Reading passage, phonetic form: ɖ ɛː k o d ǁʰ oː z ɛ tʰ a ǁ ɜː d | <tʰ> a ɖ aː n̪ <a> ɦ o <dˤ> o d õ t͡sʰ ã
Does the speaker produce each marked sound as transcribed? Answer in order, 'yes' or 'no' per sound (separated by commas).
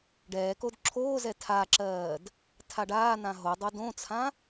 yes, no, yes